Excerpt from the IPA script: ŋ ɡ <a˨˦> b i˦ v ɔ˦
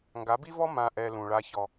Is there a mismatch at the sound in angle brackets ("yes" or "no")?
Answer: no